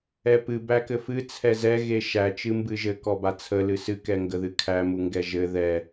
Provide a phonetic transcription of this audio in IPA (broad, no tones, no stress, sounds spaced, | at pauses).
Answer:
ɛ p ɨ b æ k ɘ f ɨ t͡sʰ ɛ z ɛ ɣ e ʃ æ t͡ʃ ɨ m b ɨ ʒ ɘ k ɔ b a t͡sʰ ə l ɨ s ɨ k ɛ ŋ ɡ ə ð ɨ kʰ æ m u ŋ ɡ ɛ ʒ ɘ ð ɛ